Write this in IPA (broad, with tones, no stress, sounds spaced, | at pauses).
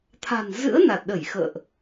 t̪ʰ a̤˨˩ n z ɨ̰˧˥ ə̯ n a˨˩ t̚ ɗ ə˧˩ j x ə̰ː˧˨ ʔ